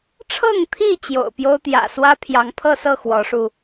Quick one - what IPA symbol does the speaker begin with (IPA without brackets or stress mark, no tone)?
ʈ͡ʂʰ